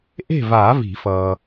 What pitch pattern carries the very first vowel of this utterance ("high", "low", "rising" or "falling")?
falling